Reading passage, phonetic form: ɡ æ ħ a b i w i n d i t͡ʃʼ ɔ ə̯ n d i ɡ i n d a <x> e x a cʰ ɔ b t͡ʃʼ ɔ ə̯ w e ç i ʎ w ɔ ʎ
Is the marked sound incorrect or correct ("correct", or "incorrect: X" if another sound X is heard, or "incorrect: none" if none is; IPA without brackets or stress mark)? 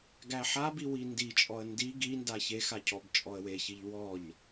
incorrect: ç